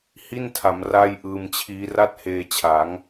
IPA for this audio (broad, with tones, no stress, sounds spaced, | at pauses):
h i˥˩ n tʰ a˩˦ m r aː˥˩ j ʔ ɯː˧ m t͡ɕʰ iː˦˥ r a˥˩ t̚ h eː˧ t͡ɕʰ a˩˦ ŋ